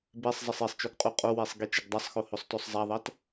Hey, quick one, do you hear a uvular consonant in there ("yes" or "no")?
yes